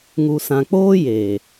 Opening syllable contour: low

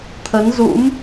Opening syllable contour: rising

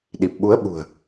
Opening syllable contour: low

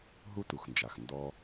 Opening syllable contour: high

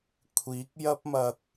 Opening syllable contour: rising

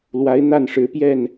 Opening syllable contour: rising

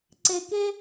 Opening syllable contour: low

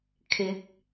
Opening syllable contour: rising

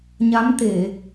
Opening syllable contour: rising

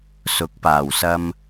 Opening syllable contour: rising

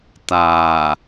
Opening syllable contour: low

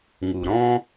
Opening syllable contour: low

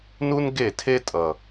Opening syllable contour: high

